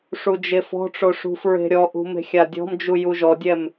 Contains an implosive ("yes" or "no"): no